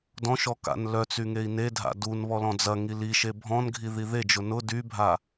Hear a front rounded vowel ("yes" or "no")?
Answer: yes